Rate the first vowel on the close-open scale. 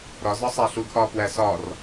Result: open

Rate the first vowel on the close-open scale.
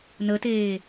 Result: mid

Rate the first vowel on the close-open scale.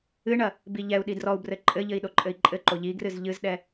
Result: close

